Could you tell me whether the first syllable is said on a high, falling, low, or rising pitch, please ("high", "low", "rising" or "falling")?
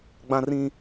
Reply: high